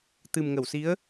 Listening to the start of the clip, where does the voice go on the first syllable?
low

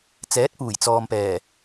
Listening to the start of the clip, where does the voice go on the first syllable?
rising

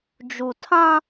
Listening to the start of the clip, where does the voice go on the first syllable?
low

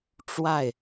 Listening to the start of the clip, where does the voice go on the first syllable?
falling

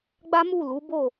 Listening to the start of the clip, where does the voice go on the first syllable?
high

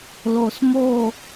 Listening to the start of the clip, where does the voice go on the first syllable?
low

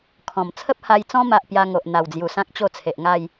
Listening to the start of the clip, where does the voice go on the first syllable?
low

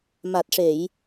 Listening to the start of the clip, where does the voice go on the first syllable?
low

